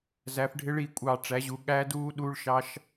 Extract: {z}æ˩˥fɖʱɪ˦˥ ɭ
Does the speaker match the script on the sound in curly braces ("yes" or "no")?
yes